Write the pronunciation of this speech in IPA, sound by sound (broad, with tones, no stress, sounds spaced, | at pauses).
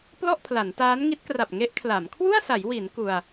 p l ɔ˥˩ ʔ pʰ l a˩˦ n t aː˦˥ n ŋ i˦˥ t̚ k r a˨˩ p̚ ŋ e˦˥ ʔ kʰ l a˩˦ m kʰ w u˥˩ a̯ s a˩˦ j w i˩˦ n k u˧ a̯